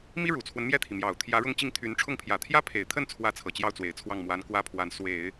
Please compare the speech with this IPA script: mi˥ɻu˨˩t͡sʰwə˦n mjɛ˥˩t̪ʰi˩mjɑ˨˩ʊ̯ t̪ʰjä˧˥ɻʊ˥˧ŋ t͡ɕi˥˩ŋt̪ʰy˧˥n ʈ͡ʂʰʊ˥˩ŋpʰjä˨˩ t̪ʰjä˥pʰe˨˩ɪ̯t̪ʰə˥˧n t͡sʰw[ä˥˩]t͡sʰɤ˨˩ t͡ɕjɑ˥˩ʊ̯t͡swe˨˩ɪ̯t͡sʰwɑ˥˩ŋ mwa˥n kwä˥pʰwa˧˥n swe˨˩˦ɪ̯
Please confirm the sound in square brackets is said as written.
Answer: yes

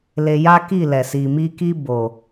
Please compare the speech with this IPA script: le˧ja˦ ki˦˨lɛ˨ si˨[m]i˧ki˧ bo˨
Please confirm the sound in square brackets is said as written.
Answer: yes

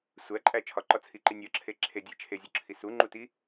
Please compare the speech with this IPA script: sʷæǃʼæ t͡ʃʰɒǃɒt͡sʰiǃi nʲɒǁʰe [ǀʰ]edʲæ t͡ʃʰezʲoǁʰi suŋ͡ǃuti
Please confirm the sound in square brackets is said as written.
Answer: no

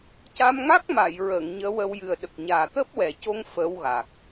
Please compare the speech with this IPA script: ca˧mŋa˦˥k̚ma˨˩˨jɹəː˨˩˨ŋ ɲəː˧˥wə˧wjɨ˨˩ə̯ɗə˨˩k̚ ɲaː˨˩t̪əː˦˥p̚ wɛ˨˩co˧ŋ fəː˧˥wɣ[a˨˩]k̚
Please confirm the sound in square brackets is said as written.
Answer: yes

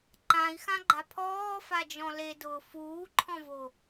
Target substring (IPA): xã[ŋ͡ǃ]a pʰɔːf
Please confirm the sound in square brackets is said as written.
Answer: no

